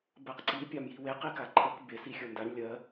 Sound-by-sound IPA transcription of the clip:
bɜqǀi pʲamjiweq ikaǃʰək bes ixʲə˞ndaɳ lʲɜ

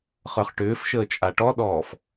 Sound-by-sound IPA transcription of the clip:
χə˞χʈʏːfʃəː t͡ʃʼaʈɔɗɔːf

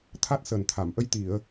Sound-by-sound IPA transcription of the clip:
t̪ʰa˦˥t̚səː˨˩nt̪ʰa˨˩˨mʔə˧j t̪i˨˩˨ə̯

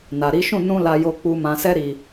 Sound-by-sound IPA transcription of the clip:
na˨ɾi˨˦ʃũ˦˨ nũ˧ la˧jo˧k͡pu˧ mã˨sɛ˧ ɾi˨

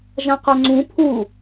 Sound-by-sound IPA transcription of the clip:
ʒãqœŋ͡ǀũ pʰu

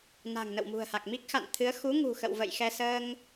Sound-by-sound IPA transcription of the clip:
na̤˨˩ŋnə̰˧˨wmṳ˨˩ə̯ha˨˩k̚ mi˦˥k̚xa̰˧˨n t̪ʰɨ˨˦ə̯ xu˨˦ŋṳ˨˩ xə̰˧˨wvə̰˧˨jxɛ˧ səː˧ŋ

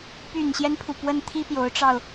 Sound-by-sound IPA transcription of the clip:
py˨˩nɕjɛ˦npʰu˩ pwə˥˩n t̪ʰi˥pjo˧˥ʊ̯ʈ͡ʂɑ˧ʊ̯

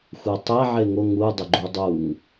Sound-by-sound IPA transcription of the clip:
xʷɛtˤɛ ʕeŋo ŋu dˤʊɡ͡ǃudˤuŋ

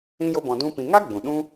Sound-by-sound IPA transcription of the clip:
ĩ˦jo˦bɔ̃˧ dũ˦pĩ˧ ŋa˦ ɡ͡bũ˨ɗũ˦

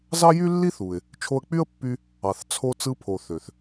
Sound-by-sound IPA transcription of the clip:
zɑ˥jy˥lːi˥θu˩ɪ̯ | t͡ʃʰo˧ə̯k͡py˥ə̯pːy˧ | ɑ˩θt͡sʰo˧ t͡sɯ˧pʰo˩ θø˩θ

